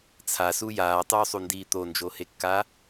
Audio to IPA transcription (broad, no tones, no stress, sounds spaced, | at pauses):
t͡sʰ a s u j aː tˤ uː sˤ u n d iː t̪ o n d͡ʒ o h e kː a